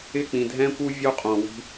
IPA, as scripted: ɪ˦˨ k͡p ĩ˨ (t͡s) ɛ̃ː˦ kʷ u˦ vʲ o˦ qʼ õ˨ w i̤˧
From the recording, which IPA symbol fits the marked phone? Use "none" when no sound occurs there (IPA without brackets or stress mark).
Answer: dʱ